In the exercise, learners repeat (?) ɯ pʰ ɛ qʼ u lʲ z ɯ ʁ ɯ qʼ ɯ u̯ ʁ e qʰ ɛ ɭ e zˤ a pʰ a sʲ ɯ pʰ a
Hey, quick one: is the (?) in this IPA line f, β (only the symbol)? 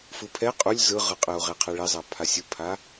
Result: f